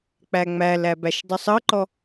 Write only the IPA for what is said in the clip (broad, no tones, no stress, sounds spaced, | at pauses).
k͡p æ ŋ͡m æ l æ b æ ʃ dˤ ʉ sˤ ɤ ǃ ɔ